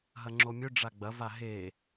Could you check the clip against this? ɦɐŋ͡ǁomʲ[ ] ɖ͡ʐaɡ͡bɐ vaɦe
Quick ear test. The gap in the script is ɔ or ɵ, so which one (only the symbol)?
ɵ